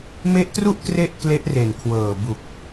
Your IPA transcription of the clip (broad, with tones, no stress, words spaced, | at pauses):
me˦˥ʔtru˥˩ʔ kre˥˩ʔkle˦˥ʔre˨˩nkʰwɤː˨˩ bu˨˩k̚